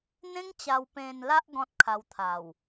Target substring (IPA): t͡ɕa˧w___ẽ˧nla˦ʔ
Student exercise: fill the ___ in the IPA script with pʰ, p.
p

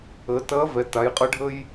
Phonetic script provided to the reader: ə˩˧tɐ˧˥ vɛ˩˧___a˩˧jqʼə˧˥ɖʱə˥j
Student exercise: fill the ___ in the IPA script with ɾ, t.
t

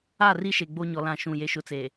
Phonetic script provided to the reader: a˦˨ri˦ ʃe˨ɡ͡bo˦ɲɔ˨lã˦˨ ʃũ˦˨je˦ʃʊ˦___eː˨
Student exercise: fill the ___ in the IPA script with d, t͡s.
t͡s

